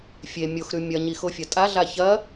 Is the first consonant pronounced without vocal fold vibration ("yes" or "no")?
yes